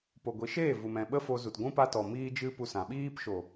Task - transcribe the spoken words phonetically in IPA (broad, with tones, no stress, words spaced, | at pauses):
po˨ɡʷi˨˦ʃeː˦˨ vu˨mɛ̃˨ɓə˦fo˧ zu˨tɡʷũ˦ pa˧tɔ˨ miː˦d͡ʒɨ˦ pu˧sã˨ ɓiː˧pʃo˨